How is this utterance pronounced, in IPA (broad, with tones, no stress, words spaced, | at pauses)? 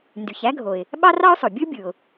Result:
ndy˩çæ˥ɡʱo˩ɪ̯ | ɓɑ˥rɑ˥ʊ̯sˤo˩ bʲɯ˥bʲɯ˩ʊ̯